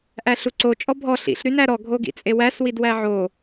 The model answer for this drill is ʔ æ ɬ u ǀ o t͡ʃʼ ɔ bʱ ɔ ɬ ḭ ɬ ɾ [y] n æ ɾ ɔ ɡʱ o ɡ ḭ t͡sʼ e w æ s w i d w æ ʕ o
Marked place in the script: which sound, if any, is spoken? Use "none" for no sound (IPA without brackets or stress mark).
y